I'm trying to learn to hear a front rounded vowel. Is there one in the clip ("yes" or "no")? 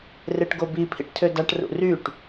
yes